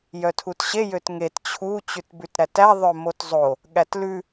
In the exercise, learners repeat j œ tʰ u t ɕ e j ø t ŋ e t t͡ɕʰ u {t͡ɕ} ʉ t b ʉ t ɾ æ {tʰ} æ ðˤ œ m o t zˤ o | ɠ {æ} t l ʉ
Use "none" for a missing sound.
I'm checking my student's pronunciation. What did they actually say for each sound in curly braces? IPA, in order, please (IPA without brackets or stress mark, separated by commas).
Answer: t͡ɕ, t, æ